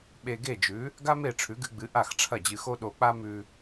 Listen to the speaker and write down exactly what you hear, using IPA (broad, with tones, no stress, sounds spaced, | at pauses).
ɓ e˧ ɡ e˥˩ d͡ʒ ʉ˩˥ | ɡ a˥ m e˥˩ ʈ͡ʂʰ ʉ˩˥ ɡ ɨ˧ ɡ͡b ɨ˩˥ ʔ a˥˩ x ʈ͡ʂʰ ɐ˥˩ d͡ʑ ɨ˧ x o˥ ɗ o˧ k͡p a˥ m ʉ˧